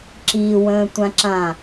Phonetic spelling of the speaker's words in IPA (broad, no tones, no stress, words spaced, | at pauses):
ǁiwə̃ːtʷãǁã